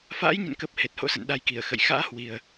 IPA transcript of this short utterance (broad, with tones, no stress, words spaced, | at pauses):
fa̰ː˧˥jɲə̰˧˨nkə˨˩p̚ he˨˩t̚ho̰˧˥sə̰˧˨n ɗa˨˦jki˧˩ə̯ xə̰˧˨j xa̰ː˧˥hwi˨˩ə̯